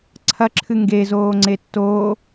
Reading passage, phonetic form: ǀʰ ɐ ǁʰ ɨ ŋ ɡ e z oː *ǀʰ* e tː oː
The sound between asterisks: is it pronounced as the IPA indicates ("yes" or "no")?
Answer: no